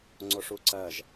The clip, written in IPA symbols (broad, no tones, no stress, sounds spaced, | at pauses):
ŋ͡ǀ o ʂ u ǀ ɜ ʒ